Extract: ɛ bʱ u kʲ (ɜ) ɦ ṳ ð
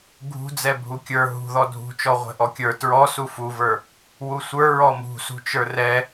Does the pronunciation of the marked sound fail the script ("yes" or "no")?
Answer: yes